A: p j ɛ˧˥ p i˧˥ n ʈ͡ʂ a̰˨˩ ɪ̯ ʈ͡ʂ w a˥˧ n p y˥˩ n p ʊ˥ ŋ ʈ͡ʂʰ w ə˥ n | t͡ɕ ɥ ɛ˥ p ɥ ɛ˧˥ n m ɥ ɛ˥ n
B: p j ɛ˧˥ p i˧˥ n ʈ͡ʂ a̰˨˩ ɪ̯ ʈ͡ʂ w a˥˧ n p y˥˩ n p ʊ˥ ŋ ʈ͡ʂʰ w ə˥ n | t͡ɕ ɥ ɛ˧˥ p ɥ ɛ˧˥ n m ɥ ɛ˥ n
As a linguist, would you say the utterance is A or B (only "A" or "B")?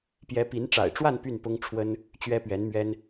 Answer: A